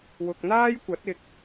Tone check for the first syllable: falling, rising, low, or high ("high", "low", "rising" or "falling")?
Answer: low